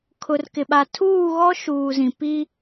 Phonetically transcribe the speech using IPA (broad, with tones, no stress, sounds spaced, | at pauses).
kʰ ʊ˨ r k ɪ˨ ɓ a˨ tʰ uː˦˨ ɣ ɔ˦ ʃ uː˨ z ĩ˨ p i˦